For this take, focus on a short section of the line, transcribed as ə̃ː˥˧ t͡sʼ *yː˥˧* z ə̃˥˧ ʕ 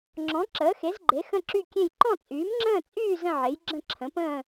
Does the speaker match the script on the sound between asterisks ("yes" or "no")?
yes